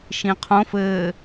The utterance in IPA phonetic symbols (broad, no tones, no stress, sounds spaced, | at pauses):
ʃ ĩ qʰ õ f ɘː